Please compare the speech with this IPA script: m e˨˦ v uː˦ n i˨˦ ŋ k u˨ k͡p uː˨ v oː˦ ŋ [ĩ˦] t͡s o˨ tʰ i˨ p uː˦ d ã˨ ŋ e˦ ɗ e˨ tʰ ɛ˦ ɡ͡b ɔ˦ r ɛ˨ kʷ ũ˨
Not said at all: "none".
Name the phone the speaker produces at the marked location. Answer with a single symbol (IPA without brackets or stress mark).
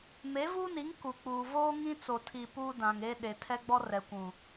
ĩ˦